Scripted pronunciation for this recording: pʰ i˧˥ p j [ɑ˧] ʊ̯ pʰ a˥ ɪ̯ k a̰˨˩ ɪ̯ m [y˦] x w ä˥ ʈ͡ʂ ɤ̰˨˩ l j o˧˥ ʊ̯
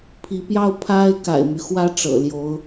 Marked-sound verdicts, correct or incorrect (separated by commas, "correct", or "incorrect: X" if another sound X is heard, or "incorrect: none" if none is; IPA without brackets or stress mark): incorrect: ɑ˥, correct